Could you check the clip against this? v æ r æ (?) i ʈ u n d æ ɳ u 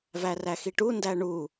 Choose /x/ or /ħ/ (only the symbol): x